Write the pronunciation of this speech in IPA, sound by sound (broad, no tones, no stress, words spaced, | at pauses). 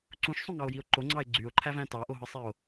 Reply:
ǀũʃsˤũŋɑo̯jio̯ ǃoŋ͡ǀɑe̯ ɡ͡ǀyo̯ǃʰævæ̃ tɑʔoɦɯsˤeo̯